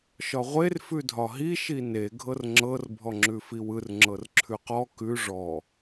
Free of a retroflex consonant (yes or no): no